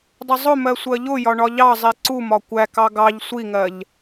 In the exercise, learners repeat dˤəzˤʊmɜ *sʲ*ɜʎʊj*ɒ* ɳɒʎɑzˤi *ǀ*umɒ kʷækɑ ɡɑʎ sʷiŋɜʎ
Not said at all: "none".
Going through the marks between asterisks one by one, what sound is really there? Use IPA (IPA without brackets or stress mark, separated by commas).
sʷ, ɒ, ǀ